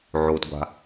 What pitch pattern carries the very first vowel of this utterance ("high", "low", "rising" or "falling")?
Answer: low